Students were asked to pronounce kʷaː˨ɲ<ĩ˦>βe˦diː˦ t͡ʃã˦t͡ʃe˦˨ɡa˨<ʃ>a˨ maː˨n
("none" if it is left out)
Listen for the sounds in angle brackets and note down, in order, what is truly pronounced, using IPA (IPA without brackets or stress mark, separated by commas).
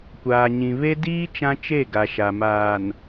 ĩ˨, ʃ